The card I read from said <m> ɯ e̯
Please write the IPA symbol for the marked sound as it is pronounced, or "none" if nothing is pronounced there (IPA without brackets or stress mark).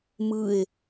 m